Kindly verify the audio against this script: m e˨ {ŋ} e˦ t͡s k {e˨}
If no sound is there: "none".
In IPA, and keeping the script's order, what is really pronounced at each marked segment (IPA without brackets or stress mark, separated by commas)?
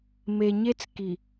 ɲ, i˨